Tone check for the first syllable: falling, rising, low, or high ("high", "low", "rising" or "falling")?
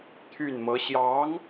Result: falling